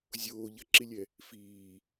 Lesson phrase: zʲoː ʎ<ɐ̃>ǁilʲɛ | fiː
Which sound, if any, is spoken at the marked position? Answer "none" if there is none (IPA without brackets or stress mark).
ɐ